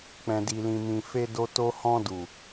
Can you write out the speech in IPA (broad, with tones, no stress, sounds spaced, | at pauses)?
k͡p ɛ̃˨ d i˨ l ĩ˨ m ĩ˨ f e˧ d o˧ t o˧ h ɔ̃˧ d u˨